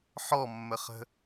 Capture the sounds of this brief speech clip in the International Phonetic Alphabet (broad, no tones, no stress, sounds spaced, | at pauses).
ħ ɔ mː ə χ ə̤